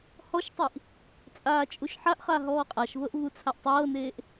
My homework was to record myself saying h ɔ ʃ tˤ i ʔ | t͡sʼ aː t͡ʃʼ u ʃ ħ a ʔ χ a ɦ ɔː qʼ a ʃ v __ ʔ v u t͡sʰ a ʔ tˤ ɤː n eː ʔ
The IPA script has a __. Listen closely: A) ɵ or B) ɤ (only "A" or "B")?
B